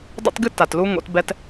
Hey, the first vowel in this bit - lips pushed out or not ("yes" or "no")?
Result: no